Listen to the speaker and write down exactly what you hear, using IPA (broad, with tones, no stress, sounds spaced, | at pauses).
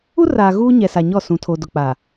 u˦ r aː˨ ɣ uː˦ ɲ ɛ˨ s a˨ ɲ ɔ˦˨ s ũ˨ tʰ o˨ d ʊ˨ k͡p a˨